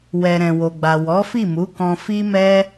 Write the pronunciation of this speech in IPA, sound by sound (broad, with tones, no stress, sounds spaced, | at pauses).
w ɛ˨ ɾ ɛ̃˨ w o˨ ɡ͡b a˨ w ɔ˨˦ f i˦˨ m u˨˦ k ɔ̃˧ f i˦ m ɛ˦